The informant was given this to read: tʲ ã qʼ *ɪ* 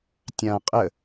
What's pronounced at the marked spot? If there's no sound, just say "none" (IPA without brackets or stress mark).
ə